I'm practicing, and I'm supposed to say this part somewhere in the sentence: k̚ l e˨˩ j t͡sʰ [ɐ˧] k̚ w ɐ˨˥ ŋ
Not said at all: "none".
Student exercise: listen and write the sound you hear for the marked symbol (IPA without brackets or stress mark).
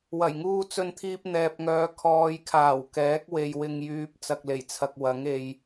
ɐ˨